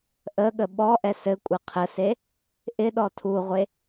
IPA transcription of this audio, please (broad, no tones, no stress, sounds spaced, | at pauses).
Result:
ʔ ə ɠ ə ɓ ɔ ʔ ɛ s ɘ kʷʼ ɪ qʰ ə s e | ʔ ɪ ɗ ɔ tʰ u ʁʷ e